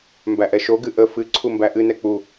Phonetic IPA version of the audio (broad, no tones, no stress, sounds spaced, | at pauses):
m b æ ʔ ɛ ʃ o ɡ ɨ ʔ ə f ɨ ǀʰ u m b æ ʔ ɨ n ɛ k͡p u